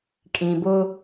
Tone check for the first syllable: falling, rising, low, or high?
low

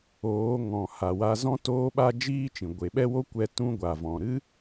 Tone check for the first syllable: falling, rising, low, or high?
rising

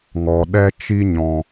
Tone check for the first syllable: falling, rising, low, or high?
low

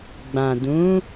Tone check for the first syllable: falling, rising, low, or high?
low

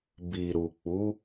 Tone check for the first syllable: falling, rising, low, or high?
low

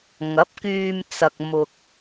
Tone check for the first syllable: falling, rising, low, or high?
rising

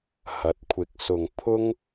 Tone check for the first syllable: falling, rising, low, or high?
rising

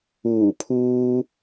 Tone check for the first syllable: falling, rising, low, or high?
low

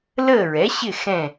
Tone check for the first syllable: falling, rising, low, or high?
falling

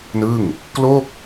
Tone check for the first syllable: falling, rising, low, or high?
falling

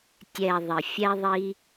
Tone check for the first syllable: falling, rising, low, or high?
low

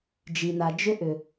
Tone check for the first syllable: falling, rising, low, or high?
low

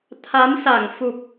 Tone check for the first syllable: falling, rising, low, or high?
rising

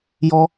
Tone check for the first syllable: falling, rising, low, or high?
high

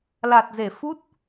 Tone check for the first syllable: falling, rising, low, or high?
low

